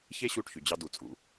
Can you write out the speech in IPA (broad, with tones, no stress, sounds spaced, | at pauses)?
ç e˥ ɕ u˥˩ ʈ ç y˩ d͡ʑ ɑ˧ d u˩ t͡sʼ ṵ˩